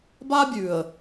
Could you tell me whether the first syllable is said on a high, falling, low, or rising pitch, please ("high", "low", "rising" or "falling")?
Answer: high